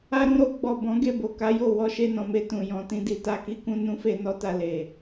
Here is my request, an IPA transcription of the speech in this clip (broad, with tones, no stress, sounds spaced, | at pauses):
a˧ ɾ ũ˧ ɾ o˧ ɡ͡b ɔ˨ b ɔ̃˨˦ ɡ e˦˨ b o˨ k a˨˦ j o˦˨ w ɔ˧ ʃ e˧ n ɔ̃˨ m e˧ t ũ˨ j ɔ̃˨ t ĩ˧ d i˨ t a˧ k i˦ k ũ˦ n ũ˧ f e˧ n ɔ˦ t a˧ l e˨